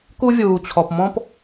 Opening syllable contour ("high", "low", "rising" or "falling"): high